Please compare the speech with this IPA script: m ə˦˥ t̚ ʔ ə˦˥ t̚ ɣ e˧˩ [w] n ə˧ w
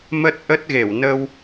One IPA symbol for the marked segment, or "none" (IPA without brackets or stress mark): w